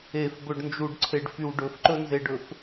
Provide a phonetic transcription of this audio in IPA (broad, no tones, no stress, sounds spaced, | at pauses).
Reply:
e f b ɵ ɖ n d͡ʒ u ɖ ǀʰ e ɖ f y w ɖ ɵ f ǃ ɵ n z e ɖ ɵ f